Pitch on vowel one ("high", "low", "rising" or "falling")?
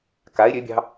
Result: rising